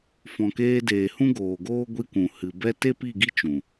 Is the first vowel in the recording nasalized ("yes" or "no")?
yes